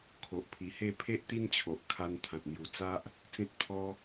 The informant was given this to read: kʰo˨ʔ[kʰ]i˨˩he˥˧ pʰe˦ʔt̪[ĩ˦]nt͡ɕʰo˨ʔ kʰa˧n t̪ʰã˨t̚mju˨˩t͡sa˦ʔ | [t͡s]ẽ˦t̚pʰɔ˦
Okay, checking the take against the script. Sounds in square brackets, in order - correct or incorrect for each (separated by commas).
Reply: incorrect, incorrect, correct